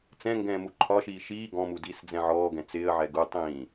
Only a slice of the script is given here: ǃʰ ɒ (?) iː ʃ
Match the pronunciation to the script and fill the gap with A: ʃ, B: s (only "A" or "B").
A